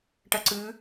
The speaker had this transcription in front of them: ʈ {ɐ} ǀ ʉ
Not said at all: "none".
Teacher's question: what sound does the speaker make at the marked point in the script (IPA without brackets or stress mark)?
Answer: ɐ